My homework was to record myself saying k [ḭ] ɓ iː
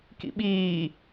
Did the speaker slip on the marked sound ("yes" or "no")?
no